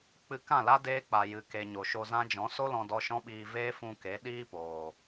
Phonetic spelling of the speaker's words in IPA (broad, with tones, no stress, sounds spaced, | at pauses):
k͡p ɨ˧ k ã˦˨ l a˦ d eː˦ k͡p a˨ j ɨ˨ k e˨ ɲ o˨ ʃ o˧ z ã˦ d͡ʒ ɔ̃˨˦ s o˦ l ɔ̃˧ d ɔ˧ ʃ ɔ̃˦ ɓ iː˧ v eː˦ f ũ˧ k e˨˦ ɗ iː˦ p oː˨